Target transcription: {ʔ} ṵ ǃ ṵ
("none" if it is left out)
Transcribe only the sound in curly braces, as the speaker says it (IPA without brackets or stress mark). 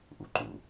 ʔ